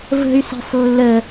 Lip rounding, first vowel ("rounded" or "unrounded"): unrounded